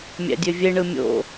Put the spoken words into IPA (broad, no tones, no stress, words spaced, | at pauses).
mʲæ̰dʲøvʲeɳɯ mʲo̰